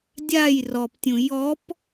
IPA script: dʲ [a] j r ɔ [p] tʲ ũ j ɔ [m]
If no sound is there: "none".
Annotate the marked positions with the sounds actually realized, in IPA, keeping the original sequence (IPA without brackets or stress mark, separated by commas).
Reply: a, p, p